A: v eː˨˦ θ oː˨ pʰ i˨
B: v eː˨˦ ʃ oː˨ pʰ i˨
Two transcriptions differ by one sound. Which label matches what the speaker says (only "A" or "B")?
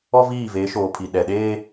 B